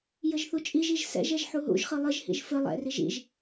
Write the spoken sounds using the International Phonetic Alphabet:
jɘʒθut͡ʃʼiʒiʒ sɛ̰ʒɛʒ ħuɦṵʒχɨ lˠɘʒhḭʒ fɘ lˠɛ̰riʒ ḭʒ

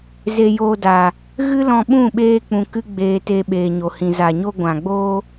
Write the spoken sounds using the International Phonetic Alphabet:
ze˧joː˧da˨ | ɣɨ˦lɔ̃˧ɓũ˦˨ɓeː˧ k͡pũ˧kɨ˦ɡ͡beː˧te˧ ɓeː˨ɲo˨hĩ˨ za˨ɲo˧ ɡʷã˨ ɡ͡boː˧

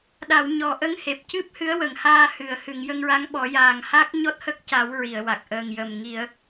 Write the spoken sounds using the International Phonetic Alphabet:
ɗa˨˩˨w ɲɔ˨˩˨ ʔə˧˥ŋ he˨˩p̚ cɨ˦˥p̚hɨ˧˥ə̯wə˨˩˨ŋ haː˧hɨ˨˩˨ə̯ hɨ˨˩˨ŋjə˧ŋɹa˧˥ŋɓɔ˨˩˦ jaː˨˩ŋha˦˥k̚ ɲɔ˦˥t̚hə˦˥k̚ca˨˩˦w ɹi˨˩˨ə̯wa˨˩k̚ ʔəː˨˩ŋjəː˨˩m ŋi˨˩˦ə̯

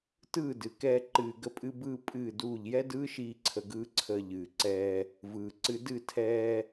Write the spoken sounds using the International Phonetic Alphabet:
tɯː˦˨dɨ˨kɛː˧ ǃɨː˧ ɡə˧pʼɨ˧bɯː˧ pʼɨː˦˨duː˦˨ʎ jɛ˦dɯː˦ʃiː˧ ǀʰə˧ɡɯː˦ǀʰəː˧ ʎɨː˨ǀɛː˧ | vɯː˨ǀɨ˧ dɨ˦˨tʰɛː˧

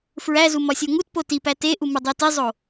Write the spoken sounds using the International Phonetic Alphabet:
fɹæzu mɒsʲoŋutpo tipæ teʔu mudˤetizˤo

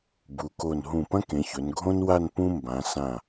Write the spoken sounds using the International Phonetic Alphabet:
bu˩˧ko˧˩n ɦũ˧˩pɐ̃˥kẽ˩˧çɵ˩˧n ɡʱõ˥nwa˥˧n pũ˥ mbã˩˧sã˧˩

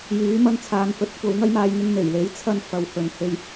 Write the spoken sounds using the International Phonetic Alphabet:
jyː˨˥mɐ˧n t͡sʰaː˨nfɵ˨˥t̚ kʷɐ˨˥wŋɐ˥jmaː˧j ŋɪ˧ŋn̪e˨˩jle˨˥j t͡sʰɐ˥n fɐ˨˧whɵ˨˥n he˧j

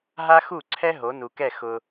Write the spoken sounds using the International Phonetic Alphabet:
ɦa˥xu˥˩ǀʰɛ˥ ɦo˩˥nu˩kɛ˥˩ xʊ˧

